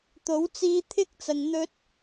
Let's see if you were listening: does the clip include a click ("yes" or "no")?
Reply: no